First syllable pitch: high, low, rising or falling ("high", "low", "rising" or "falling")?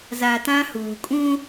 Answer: low